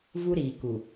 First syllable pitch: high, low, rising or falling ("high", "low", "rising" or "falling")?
high